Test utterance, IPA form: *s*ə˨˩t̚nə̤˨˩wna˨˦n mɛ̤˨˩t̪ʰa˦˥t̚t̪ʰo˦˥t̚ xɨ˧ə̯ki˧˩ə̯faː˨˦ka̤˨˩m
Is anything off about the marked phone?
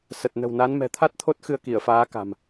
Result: no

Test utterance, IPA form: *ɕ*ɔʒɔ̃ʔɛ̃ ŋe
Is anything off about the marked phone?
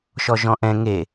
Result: yes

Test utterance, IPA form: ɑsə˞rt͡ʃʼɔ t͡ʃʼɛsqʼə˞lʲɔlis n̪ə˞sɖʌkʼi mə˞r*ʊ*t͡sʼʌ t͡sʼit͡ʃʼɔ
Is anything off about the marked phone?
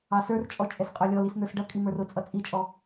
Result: no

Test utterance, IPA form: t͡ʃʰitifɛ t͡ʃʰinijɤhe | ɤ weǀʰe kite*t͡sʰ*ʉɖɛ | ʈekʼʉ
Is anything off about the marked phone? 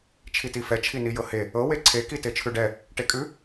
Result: yes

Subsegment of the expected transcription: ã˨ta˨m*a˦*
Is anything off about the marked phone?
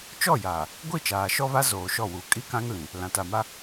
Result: no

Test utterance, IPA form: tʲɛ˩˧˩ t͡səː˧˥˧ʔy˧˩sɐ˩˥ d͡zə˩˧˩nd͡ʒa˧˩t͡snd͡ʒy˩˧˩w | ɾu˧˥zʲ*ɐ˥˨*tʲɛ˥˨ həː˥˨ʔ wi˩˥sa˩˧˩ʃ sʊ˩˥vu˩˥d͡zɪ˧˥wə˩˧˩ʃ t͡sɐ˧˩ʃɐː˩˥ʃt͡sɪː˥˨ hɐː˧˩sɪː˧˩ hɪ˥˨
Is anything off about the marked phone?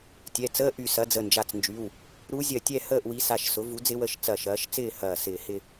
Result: yes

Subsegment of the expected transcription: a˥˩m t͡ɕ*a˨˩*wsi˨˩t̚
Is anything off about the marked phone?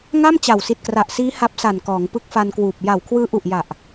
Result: no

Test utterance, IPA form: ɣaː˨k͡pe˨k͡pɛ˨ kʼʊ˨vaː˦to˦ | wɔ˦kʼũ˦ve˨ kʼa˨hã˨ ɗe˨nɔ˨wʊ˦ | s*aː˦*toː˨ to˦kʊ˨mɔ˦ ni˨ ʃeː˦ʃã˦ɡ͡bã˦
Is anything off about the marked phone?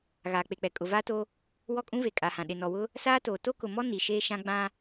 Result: no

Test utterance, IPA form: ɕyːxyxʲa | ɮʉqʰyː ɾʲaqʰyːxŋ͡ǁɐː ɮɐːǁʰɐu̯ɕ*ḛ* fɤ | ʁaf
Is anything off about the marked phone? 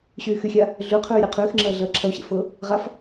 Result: no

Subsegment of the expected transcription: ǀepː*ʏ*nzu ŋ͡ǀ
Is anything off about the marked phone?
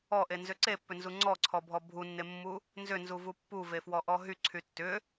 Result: no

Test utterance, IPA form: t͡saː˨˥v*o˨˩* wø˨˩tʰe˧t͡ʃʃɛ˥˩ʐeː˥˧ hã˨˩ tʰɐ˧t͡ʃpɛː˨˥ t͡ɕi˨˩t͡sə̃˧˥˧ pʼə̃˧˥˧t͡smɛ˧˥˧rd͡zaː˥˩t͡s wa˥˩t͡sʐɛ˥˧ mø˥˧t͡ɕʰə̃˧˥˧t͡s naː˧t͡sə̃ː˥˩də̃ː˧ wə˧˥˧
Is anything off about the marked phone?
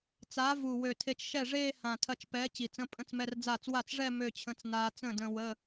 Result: yes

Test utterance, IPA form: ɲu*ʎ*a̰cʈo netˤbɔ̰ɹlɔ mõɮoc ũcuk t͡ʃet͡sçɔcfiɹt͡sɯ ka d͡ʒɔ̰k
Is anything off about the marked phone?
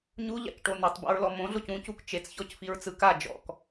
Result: no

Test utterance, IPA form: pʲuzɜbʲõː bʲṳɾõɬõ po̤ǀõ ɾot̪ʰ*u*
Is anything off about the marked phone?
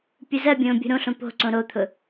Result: yes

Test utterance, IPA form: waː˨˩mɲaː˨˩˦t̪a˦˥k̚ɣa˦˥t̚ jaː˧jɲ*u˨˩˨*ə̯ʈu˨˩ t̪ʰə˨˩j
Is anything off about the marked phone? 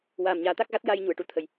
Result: no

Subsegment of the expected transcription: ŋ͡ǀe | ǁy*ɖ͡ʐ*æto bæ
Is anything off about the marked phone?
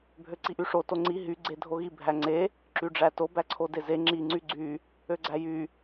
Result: no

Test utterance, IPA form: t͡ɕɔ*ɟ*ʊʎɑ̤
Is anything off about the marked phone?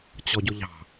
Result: no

